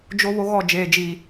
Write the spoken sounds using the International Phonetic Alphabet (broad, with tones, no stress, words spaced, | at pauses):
d͡ʒo˦βo˦ɣɔ˦˨ d͡ʒeː˨d͡ʒi˨